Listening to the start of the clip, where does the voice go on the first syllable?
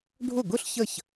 falling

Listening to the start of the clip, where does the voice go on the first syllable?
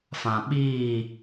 low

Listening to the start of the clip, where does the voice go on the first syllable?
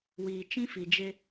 low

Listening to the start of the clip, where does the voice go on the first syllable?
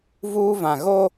high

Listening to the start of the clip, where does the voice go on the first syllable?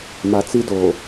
low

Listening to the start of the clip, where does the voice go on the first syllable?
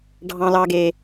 low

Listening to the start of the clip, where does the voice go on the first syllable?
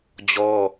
high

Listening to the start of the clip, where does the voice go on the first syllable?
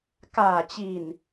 low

